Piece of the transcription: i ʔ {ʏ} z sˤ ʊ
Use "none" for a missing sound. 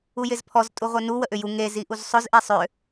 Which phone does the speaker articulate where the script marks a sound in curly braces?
u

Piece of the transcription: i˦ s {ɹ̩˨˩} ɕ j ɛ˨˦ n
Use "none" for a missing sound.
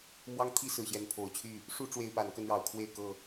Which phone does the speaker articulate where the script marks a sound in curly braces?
ɹ̩˨˩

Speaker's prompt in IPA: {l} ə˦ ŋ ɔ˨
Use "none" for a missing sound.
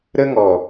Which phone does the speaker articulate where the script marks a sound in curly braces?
ɾ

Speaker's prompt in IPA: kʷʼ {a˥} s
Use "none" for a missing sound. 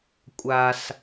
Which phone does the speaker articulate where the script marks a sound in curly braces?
a˥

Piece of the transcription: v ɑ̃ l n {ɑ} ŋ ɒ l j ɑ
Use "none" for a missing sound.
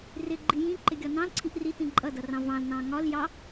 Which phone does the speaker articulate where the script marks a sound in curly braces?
ɑ̃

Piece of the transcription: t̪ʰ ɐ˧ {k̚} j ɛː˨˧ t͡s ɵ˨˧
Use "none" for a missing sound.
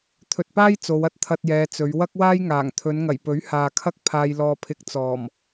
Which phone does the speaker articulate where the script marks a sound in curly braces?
t̚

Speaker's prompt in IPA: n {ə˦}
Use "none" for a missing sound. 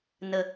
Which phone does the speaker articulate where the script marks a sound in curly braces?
ə˨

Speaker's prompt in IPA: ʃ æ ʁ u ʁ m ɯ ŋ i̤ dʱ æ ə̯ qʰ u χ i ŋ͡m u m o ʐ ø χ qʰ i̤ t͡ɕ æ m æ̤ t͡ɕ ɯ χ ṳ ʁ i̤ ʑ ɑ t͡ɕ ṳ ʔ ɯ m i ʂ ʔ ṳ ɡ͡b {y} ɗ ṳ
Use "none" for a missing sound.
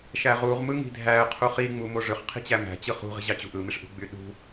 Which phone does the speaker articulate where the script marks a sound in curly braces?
y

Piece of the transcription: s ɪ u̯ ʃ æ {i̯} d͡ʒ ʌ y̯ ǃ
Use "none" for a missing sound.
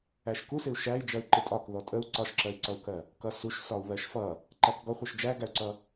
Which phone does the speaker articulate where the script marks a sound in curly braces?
i̯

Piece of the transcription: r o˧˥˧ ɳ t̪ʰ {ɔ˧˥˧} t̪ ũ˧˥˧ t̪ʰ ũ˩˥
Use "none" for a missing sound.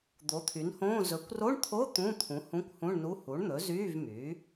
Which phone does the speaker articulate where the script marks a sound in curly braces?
o˧˥˧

